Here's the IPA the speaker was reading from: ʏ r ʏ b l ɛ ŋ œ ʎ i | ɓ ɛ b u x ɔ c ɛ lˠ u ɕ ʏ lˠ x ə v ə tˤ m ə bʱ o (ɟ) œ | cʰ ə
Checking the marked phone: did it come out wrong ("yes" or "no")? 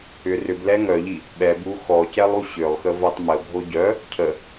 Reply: no